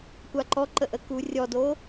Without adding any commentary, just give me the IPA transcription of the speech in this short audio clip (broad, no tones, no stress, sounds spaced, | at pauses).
kʷ a ǃ ɔ ǃ ə ʔ ə k u rʲ ɔ d o